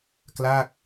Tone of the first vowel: falling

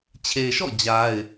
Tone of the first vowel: low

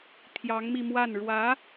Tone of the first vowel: rising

